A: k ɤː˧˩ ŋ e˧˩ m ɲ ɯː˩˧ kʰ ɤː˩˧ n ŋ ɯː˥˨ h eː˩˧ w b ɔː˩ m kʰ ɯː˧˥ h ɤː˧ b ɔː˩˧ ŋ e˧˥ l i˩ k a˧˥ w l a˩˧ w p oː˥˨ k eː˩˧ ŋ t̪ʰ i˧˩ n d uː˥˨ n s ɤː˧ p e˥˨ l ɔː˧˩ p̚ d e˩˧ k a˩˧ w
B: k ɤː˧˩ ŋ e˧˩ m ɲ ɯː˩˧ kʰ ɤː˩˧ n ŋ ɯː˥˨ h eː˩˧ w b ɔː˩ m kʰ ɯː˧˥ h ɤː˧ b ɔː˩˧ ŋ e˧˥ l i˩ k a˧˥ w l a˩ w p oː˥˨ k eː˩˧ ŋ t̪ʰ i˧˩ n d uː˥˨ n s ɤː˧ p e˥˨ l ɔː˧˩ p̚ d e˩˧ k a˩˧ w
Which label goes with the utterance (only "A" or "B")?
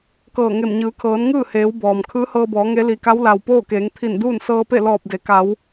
B